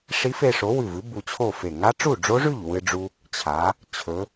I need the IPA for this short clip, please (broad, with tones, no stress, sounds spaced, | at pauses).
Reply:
ʂ i˦˥ f e˧ ʂ o˨˥ w ʉ˧˩ v ɨ˨˥ b u˧ t͡ɕʰ o˥˨ f e˧˩ ŋ a˦˥ ʈ͡ʂ u˥˨ ɖ͡ʐ o˦˥ ʐ ʉ˥˨ ʎ w ɨ˧ ɖ͡ʐ u˧ | t͡ɕʰ a˩˧ | t͡ɕʰ ɵ˩˧